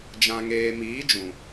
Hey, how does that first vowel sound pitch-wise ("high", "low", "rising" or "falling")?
low